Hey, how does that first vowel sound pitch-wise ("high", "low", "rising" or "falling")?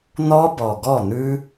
high